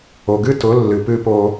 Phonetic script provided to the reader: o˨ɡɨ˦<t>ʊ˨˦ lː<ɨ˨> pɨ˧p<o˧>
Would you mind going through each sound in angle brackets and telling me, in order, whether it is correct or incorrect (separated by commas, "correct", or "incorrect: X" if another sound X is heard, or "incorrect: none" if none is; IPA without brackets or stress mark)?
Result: correct, correct, correct